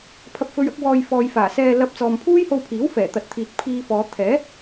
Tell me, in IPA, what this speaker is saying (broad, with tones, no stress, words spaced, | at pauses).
pʰɐ˧p̚fɵ˧ɥɐ˨˥k̚wɔː˧j fɔː˨jfaː˨˩sɛː˧ lɐ˧p̚ t͡sɔː˨mpʰuː˥jho˧wpʰiː˨˥w fɛː˨˩t̪ɐ˨˥t̚t̪ʰiː˨t̚ pʰiː˧fɔː˨˧ t̪ʰɛː˨˥